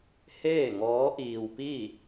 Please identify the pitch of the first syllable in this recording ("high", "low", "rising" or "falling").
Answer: falling